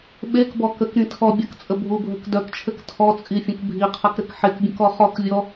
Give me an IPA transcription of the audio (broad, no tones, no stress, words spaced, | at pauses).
ɓekbɔ kəkɾĩ tʰɔ bʲɐkt͡sʼə bʱubʱək dœkt͡ʃʰɘk tʰɔt͡sʼifʲə̃k bʱiqʰɐkɾɘk ħekbʲə̃kɔ χɔkvʲɔ